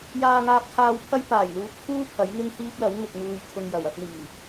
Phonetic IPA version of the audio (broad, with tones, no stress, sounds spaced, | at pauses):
j aː˧ ŋ aː˧ p̚ kʰ aː˧ w pʰ ɐ˥ j p aː˨˩ j l uː˨ p̚ kʰ uː˥ pʰ ɐ˨˥ j ŋ ɪ˥ ŋ h iː˥ p̚ l ɐ˨˥ w ŋ ɪ˨ k̚ ŋ uː˨ j t̪ʰ ʊ˨ ŋ j ɐ˨˩ w ɐ˧ p̚ n̪ iː˨˩